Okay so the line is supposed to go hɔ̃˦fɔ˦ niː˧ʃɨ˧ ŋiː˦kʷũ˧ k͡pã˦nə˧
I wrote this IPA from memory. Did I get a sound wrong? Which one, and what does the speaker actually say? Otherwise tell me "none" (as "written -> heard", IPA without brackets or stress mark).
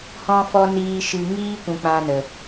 none